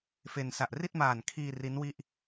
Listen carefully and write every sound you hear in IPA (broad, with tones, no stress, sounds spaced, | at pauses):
f e˧ n s a˨˩ ʔ r i˥˩ t̚ m aː˨˩ n kʰ iː˧ r i˦˥ n w i˥˩ ʔ